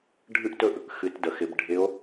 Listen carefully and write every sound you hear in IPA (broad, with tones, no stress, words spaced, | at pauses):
ɖʱɨ˥ʔtɵ˥ʔ | xɨ˩˧tdə˩xɪ˩˧b ɖʱɪ˧˥o̯